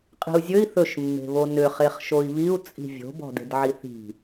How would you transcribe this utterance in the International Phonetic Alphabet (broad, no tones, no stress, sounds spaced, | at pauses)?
qʼ i̤ u̯ zʲ ɵ i̯ θ ɵ ʃ mː e̤ β o n ʏ χ e χ ʃ o i̯ β i u̯ t͡sʼ i̤ vʲ o̤ b ɔ̤ d e̤ d ʕ i θ i̤